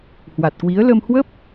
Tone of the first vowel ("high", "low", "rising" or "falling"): low